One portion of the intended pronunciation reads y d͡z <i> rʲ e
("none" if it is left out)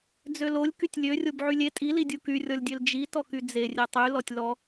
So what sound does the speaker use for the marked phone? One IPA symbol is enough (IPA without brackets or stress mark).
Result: e